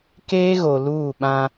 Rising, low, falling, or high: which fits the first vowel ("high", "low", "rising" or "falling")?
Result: high